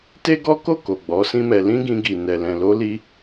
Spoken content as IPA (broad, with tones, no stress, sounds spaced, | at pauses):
t e˦ ɡ ɔ˦ k o˦˨ k o˨ ɡ͡b ɔ˨˦ s ĩ˦ m ɛ˧ l ĩ˦ ɡ ĩ˧ ɡ i˨ n ɛ˨ l ɛ̃˨ l o˧ l i˧